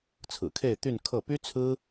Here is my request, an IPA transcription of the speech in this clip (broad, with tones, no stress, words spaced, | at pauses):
t͡sʰɹ̩˨˩kʰe˥˧ɪ̯ t̪y˥˧n kʰɤ˥˩ py˥t͡sʰɹ̩˥